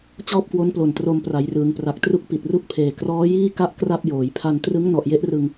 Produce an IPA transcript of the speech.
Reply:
t͡ɕɔː˥˩p̚kwo˦˥nplo˨˩n tro˧mpra˩˦jrɯː˩˦ŋ pra˨˩k̚tru˦˥k̚ pi˨˩t̚ru˥˩k̚pʰeː˨˩ krɔː˦˥jiː˥˩ ka˦˥ʔ kra˥˩p̚joː˩˦j pʰa˧ntrɯ˦˥ŋ nɔ˨˩ʔje˦˥ʔrɯ˧ŋ

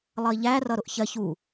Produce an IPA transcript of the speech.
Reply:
lˠʌi̯ʎæ rʌɾʊʔçɜç u

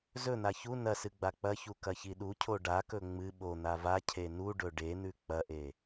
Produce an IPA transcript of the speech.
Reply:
zɵn̪a çu nɐsɨ ɡ͡bak͡pɐçu kɐçiɗucʰo ɖakɵ ŋ͡mɨ ɓo n̪avacʰe nu ɖɵɖen̪ʉ k͡pɐʔe

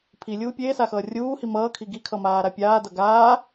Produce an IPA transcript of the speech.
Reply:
pʰilʲuː pʲeːsaxʌː rʲuːhi mʌːkʰi ɡikʰʌmaːɾa pʲaːdʌ ɡaː

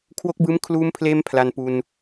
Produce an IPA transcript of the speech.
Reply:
kʰwo˦˥k̚bɯː˦˥m kʰluː˧mpʰleː˧m pʰla˧npu˧n

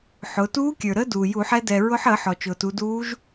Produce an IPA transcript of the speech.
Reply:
ħʊ˩˧ tuː˧˥kʲə˞˩ ɾə˧˥ duː˩ju˧˩˧ħɛ˧˥ dɛ˩ɹʊ˧˥ħə˧˩˧ ħɔ˩t͡ʃʊː˩tu˩˧duː˧˥ʒ

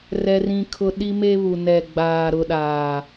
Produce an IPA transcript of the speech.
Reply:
rɛ˦rĩ˦kʰʊ˦ ɗi˦me˦ βu˨nɛ˨ ɡ͡baː˨ɾʊ˨ ɗaː˨

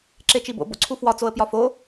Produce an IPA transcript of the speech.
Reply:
ǁet͡ʃibo̰ bo̰ǀʰufwɒ t͡soə̯pjɒfo

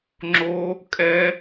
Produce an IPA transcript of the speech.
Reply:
ŋ͡ǁo˦˥ | kʼɛ˦˥

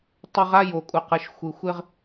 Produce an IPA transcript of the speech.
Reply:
tˤɪ˦ʁ a˦jo˨kʼu˨ qɯ˨ʃxʷɯ˨ xʷɪ˦ʁ

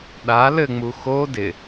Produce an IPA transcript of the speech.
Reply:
ɗa lɘŋ͡mu xo dɪ

